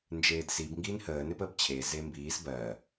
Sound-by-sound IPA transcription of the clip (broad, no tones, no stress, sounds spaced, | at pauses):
n d͡ʒ eː d s i b ŋ ɡ iː n h əː n e p əː b t͡ɕʰ e z e m b iː s b ɜ